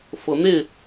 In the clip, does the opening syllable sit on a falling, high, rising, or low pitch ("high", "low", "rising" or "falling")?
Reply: rising